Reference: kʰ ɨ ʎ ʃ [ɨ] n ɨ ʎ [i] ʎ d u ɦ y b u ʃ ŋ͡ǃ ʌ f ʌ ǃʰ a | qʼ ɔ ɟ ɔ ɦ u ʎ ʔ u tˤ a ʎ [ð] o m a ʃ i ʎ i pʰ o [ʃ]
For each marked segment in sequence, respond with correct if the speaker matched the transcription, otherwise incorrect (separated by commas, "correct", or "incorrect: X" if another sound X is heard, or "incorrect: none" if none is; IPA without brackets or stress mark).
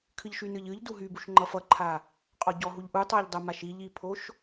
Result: incorrect: y, incorrect: ɨ, incorrect: dˤ, correct